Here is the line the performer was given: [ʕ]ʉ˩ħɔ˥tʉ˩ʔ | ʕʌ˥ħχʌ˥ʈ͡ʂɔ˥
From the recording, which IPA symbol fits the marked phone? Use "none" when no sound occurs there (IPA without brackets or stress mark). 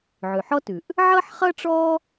ʕ